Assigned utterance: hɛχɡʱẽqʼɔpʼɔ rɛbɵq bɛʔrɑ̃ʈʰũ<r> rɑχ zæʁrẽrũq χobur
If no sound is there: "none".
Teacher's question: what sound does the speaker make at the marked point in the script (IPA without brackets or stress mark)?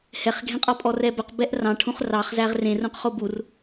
χ